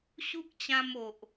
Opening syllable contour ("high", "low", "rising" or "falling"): high